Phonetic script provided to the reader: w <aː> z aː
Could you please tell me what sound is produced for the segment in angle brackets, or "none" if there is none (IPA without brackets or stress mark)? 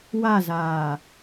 a